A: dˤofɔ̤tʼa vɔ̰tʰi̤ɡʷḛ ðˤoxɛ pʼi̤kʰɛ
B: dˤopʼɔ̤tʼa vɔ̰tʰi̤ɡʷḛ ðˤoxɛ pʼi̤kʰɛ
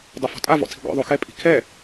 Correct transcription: A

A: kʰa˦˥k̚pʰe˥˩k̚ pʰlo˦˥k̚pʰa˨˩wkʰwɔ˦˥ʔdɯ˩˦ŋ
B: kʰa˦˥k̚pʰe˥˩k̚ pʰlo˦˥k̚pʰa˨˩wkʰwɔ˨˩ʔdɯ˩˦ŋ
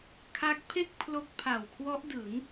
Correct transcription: A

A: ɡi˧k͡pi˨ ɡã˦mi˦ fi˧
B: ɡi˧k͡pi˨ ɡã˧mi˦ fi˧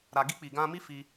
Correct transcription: B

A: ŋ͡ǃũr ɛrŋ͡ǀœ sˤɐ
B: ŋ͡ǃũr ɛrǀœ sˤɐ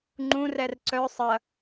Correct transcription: B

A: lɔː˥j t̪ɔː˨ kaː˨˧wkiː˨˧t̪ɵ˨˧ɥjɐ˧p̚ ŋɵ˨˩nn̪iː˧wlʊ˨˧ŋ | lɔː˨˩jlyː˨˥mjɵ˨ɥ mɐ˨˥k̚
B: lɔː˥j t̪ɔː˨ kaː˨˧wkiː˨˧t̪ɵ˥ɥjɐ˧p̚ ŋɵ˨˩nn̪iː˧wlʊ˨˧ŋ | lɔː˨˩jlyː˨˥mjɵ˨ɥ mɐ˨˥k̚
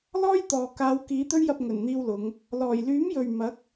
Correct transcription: B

